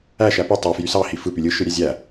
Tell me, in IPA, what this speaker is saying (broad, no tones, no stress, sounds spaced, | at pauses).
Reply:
æ ʃ æ p y tˤ ø f j y s ɑ h i f ɯ p y lʲ ɯ ʃ ɯ ɾʲ æ zʲ æ